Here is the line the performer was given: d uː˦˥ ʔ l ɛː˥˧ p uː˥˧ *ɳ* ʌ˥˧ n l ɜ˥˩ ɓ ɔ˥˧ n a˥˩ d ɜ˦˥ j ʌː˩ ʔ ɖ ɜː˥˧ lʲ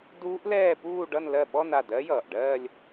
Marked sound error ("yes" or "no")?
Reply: yes